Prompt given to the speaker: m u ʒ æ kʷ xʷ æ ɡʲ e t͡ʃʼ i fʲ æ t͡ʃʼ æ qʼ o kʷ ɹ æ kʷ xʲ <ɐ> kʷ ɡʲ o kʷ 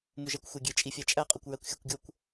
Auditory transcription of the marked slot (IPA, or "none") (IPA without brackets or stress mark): æ